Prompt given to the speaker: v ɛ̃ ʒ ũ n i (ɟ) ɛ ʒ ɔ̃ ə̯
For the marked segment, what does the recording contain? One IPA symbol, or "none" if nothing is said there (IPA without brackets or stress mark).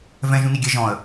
ɡʲ